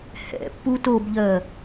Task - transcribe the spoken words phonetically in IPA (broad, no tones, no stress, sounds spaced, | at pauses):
h ɛ̰ pː u t o b ʎ ɜ